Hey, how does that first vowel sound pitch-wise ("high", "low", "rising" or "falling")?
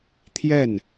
falling